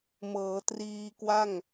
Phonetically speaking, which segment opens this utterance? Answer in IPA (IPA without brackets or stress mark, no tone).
m